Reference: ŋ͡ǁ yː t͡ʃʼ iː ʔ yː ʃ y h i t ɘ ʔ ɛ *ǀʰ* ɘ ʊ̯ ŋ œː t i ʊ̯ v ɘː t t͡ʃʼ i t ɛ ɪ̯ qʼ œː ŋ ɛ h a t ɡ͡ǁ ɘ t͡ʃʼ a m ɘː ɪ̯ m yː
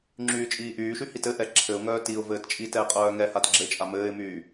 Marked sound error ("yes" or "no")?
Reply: yes